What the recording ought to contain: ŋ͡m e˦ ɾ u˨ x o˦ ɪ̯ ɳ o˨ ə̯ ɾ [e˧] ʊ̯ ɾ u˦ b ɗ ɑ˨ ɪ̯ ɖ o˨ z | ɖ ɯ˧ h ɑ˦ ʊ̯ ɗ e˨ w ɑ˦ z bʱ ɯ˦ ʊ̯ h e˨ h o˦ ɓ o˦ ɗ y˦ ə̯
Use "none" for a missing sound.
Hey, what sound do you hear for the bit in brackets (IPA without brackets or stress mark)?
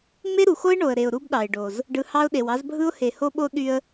e˨